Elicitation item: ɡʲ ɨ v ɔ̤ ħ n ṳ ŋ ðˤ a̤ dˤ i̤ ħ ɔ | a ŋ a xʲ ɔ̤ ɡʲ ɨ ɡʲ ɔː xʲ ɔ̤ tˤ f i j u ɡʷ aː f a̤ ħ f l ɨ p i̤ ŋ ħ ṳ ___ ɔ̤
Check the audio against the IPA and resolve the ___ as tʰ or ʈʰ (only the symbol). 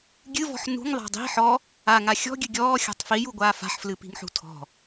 tʰ